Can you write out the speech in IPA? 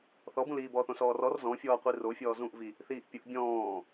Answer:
θɔbũliːbɔːθ õsɔːrɔr zɔ̃fʲɔːqʷi ro fʲɔːzũʔvi | θiːʔpʲʊʔ bʲɔ̃ː

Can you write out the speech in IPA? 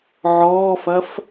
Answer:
ʕɔːfɐf

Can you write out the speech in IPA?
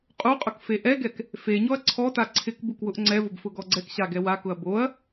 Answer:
qʼuqʼʊk feʔɛɡɛk | feɲɔɐ̯ ǀʰɔta ǀʰɪk bukwʊʔŋ͡ǀɛvʊb fʊɡɔɡ͡ǀɛkɕa ɡɛwakʊɐ̯ boɐ̯

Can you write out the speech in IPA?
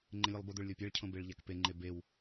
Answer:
ŋ͡ǃẽlʲelˠbod̪oɭ lʲopʲɜɭcʰõ beɭʎakpeŋ͡ǃe bew

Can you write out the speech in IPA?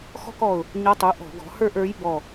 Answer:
xɔ̤˥˧kɔ˧˩ʊ̯ | ɲɔ˧˥tˤu˩˥ʔɔ̤˧˩˧ ɡɔ̤˩˧hə˞˥˧ʔə˞˧˥j bɔ˧˩

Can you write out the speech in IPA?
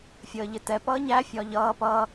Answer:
fʲəːʎɪtɛ pʌːɲæfʲɒ ʎʌː pʌ

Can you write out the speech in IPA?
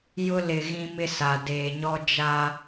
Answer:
jʊ˦ lɪ˨ ɣĩ˦mɪ˦sa˨ deː˨ɲɔ˦ d͡ʒa˦

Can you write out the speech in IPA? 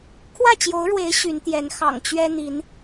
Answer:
kʰwä˥˨t͡ɕjo˨˦ʊ̯ɻwe˨˦ɪ̯ ɕy˨˦nt̪jɛ˨˦n xɑ̰˨˩ŋt͡ɕɥɛ˦n̪i˨˦n

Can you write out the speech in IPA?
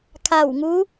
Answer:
kʰa˧˩wŋu˧˥

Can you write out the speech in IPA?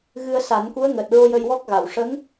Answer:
ɣɨ˧ə̯sa˨˩˦nku˧˥ə̯ ŋəː˨˩t̚ɹo˧ jəː˧jwɔ˦˥k̚ɣa˨˩w ʂəː˧˥ŋ

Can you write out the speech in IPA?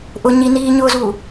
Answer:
ʔʊ ɲi niːɲʊːzuː

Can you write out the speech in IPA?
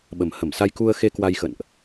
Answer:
ɓə˨˩mhə˧˩msa˧j ku˧ə̯xe˧ kwa˧jxə̰˧˨nʔ

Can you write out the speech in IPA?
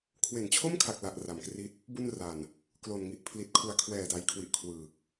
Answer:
kʰwe˨˩nt͡ɕʰo˥˩mkʰa˨˩k̚la˨˩ʔ ra˨˩mkri˥˩t̚ | bu˧n ra˨˩n | klo˨˩nŋi˨˩ʔ pʰli˨˩t̚kʰu˨˩a̯kʰwɛː˨˩ da˦˥jkʰwi˨˩ʔkʰwɯː˨˩k̚

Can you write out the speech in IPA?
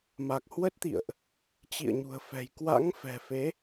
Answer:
ma˨˩k̚hwə˦˥t̚t̪ḭ˧˨ə̯ʔ | t͡ɕḭ˧˨ə̯ɲṳ˨˩ə̯ fɛ̤˨˩jkwa̰˧˥ŋfɛ̤˨˩fe˨˦

